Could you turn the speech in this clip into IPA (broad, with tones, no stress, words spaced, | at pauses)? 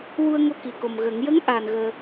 wu˧ə̯ŋo˧ ki˨˩ko˨˩mɣə˨˩˦ŋ jə˧˥ŋʔa˨˩n ɣəː˧